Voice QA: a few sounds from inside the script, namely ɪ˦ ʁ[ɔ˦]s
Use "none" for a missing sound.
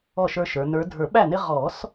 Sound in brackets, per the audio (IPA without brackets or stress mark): ɔ˨˩˦